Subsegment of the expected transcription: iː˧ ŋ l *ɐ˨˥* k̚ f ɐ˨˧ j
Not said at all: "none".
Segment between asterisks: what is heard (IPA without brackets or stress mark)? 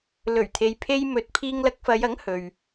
ɐ˧